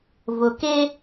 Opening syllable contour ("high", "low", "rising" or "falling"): low